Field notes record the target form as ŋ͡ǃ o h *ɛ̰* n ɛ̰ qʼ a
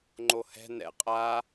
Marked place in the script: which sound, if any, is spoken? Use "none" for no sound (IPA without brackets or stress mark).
ɛ̤